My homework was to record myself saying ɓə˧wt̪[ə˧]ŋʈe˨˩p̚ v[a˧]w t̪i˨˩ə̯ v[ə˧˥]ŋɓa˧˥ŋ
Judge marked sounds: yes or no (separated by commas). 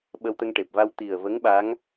yes, yes, yes